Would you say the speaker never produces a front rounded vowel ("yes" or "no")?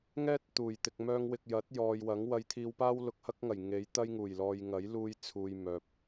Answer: no